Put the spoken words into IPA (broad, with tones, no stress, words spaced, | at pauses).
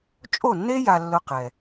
t͡ʃʼo˥˩nːe˥ ja˧lːʊ˧qɛ˩